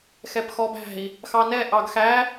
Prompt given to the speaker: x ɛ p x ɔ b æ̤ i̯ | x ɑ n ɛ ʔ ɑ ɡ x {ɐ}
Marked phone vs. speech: incorrect: æ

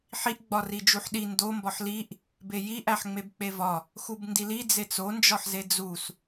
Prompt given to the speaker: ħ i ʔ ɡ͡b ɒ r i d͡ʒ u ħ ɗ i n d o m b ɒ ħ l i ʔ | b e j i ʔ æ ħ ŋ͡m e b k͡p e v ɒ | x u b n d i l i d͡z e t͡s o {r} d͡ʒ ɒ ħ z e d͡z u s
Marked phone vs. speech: incorrect: n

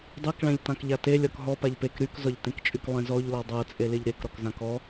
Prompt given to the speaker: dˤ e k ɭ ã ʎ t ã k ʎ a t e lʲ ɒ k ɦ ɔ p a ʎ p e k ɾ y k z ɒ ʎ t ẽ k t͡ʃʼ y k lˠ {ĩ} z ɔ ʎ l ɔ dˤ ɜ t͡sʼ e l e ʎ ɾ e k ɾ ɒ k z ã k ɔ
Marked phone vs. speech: incorrect: ẽ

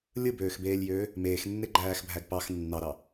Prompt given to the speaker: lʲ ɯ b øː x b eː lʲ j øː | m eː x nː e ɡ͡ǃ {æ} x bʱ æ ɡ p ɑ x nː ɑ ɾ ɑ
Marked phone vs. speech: incorrect: æː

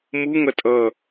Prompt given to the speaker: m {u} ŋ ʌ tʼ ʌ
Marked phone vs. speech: correct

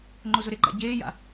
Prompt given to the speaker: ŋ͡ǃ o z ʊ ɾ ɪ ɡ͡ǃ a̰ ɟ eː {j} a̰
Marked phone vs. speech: correct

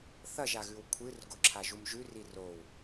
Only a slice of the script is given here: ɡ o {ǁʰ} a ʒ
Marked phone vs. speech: correct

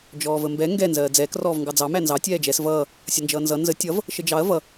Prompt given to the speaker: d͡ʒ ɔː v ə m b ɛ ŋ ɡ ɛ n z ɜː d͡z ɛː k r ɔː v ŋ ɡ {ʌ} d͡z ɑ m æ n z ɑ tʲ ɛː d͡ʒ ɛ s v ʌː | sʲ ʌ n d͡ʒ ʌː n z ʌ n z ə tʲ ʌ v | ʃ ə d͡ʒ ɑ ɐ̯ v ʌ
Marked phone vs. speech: incorrect: ɑ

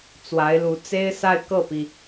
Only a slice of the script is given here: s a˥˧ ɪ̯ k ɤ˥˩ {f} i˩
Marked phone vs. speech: incorrect: p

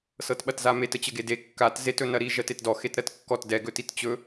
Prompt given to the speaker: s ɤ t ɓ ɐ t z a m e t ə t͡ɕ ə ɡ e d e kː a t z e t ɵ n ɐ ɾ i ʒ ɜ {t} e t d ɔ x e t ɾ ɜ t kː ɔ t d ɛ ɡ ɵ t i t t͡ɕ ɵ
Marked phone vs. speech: correct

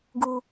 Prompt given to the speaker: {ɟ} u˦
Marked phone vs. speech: incorrect: ɡ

